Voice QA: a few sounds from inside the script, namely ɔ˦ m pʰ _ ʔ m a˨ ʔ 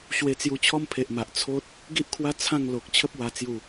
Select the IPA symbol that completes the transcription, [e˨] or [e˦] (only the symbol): e˨